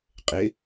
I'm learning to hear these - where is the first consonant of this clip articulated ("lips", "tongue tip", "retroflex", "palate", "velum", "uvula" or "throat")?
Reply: uvula